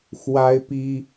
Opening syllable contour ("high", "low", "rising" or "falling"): high